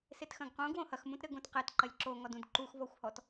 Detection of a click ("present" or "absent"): present